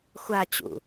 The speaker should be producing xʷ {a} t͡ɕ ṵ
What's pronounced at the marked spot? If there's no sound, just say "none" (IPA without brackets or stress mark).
a